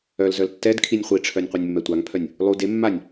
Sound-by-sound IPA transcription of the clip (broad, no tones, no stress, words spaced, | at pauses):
œlzœl tːɛd kʰinʲχʷiʈ͡ʂʰœnʲ qʷœnʲmːɛtʷaŋpʰœnʲ | lˠu de mːanʲ